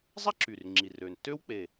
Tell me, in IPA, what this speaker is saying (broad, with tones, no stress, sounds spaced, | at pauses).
zˤ a˥ ǁ y˨˩ r ŋ͡ǁ i˨˩ r øː˨˩ n tː øː˥ w k͡p e˨˩